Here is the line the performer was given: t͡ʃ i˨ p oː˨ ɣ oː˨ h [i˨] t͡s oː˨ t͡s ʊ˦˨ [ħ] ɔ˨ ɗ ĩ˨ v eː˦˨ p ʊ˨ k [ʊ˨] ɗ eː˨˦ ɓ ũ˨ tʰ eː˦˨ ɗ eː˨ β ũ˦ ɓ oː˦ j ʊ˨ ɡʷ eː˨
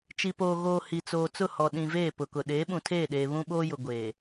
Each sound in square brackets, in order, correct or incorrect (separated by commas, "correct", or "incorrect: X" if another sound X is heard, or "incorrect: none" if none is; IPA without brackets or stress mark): correct, incorrect: h, correct